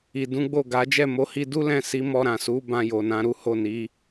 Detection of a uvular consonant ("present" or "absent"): absent